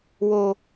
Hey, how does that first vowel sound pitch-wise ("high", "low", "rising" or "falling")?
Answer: low